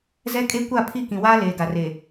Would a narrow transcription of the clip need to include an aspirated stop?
yes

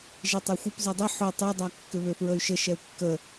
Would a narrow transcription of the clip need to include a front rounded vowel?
yes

